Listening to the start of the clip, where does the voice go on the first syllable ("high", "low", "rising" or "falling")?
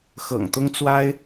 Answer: low